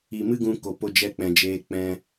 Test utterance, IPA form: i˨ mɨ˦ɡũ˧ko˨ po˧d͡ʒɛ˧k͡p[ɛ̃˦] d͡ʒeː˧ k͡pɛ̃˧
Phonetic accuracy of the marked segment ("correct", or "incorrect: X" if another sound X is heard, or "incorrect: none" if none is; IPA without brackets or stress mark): incorrect: ɛ̃˨